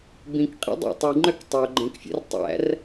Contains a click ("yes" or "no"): yes